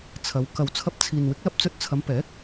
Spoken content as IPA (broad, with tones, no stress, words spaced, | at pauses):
t͡sʰɐ˨˧w kɐ˨wt͡sʰɐ˧p̚t͡sʰiː˨nwɪ˨˥k̚ lɐ˧p̚t͡sɵ˧t̚t͡sʰɐ˨˧mpɛː˨˥k̚